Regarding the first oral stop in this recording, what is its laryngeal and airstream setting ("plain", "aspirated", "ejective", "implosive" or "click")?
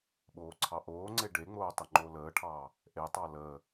implosive